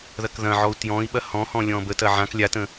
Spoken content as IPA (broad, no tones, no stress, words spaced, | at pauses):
ðɐkðɐ̃ʕɔu̯ tjɔ̃i̯ ɓɐhɔ̃hɔ̃ lʲɔ̃bətɐ ʕãk lʲatə̃